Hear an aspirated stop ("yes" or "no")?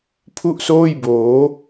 yes